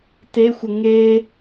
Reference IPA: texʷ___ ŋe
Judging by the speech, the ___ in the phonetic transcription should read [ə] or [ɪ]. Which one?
ə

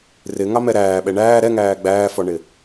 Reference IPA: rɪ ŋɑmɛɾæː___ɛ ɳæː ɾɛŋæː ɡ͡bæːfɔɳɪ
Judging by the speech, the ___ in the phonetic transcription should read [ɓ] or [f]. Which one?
ɓ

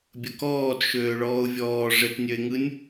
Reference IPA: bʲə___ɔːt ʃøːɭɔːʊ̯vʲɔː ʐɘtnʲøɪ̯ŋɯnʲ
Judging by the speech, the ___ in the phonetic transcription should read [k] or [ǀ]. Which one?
k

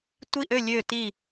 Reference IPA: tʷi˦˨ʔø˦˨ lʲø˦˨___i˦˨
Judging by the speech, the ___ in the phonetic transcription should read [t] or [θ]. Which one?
t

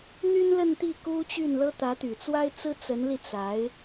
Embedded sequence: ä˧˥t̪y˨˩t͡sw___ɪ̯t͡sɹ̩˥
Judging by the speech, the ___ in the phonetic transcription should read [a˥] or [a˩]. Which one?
a˥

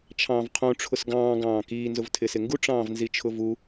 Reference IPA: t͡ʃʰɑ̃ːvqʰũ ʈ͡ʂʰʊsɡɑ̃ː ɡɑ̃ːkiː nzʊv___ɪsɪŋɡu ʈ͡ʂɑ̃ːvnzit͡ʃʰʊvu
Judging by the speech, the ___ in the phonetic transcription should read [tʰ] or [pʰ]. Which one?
tʰ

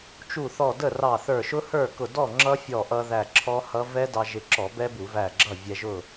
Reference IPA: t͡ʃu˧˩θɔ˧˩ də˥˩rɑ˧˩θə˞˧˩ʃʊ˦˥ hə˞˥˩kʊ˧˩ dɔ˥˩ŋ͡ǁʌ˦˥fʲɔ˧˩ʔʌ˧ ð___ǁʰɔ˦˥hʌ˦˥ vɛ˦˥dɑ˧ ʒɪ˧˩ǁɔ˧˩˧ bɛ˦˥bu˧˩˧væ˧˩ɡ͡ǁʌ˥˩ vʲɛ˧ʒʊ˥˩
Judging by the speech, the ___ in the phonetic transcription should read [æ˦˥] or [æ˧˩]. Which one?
æ˧˩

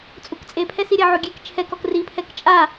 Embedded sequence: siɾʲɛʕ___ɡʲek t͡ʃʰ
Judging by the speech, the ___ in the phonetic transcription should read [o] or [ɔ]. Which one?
o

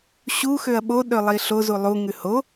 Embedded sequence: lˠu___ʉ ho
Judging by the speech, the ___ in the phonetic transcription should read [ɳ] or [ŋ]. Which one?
ŋ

